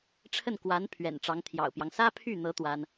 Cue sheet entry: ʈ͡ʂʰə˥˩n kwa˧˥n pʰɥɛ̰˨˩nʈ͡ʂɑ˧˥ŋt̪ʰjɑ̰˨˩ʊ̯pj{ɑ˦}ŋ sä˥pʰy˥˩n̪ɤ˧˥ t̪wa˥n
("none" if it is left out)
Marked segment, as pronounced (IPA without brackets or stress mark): ɑ˦